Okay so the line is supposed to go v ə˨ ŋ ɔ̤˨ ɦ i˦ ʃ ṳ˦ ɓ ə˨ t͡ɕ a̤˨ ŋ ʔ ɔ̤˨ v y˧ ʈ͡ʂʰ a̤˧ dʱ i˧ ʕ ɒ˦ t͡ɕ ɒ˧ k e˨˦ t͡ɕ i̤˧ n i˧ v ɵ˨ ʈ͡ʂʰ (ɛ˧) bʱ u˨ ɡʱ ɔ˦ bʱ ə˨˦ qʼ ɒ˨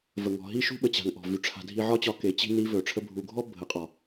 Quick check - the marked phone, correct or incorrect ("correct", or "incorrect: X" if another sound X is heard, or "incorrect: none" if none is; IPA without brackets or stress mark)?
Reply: incorrect: ə˧